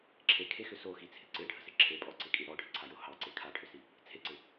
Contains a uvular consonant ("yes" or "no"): no